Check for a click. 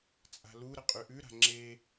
present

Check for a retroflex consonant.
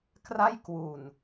absent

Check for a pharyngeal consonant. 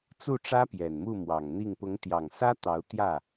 absent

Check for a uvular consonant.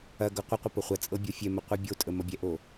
present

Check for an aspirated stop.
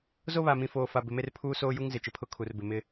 present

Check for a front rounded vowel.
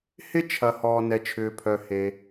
present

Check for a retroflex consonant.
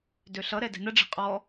present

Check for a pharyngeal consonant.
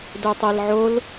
present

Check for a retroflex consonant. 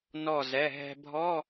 absent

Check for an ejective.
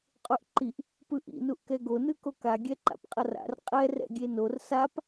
present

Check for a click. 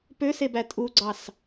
present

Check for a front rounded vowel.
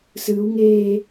absent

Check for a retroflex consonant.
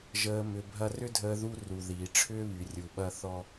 present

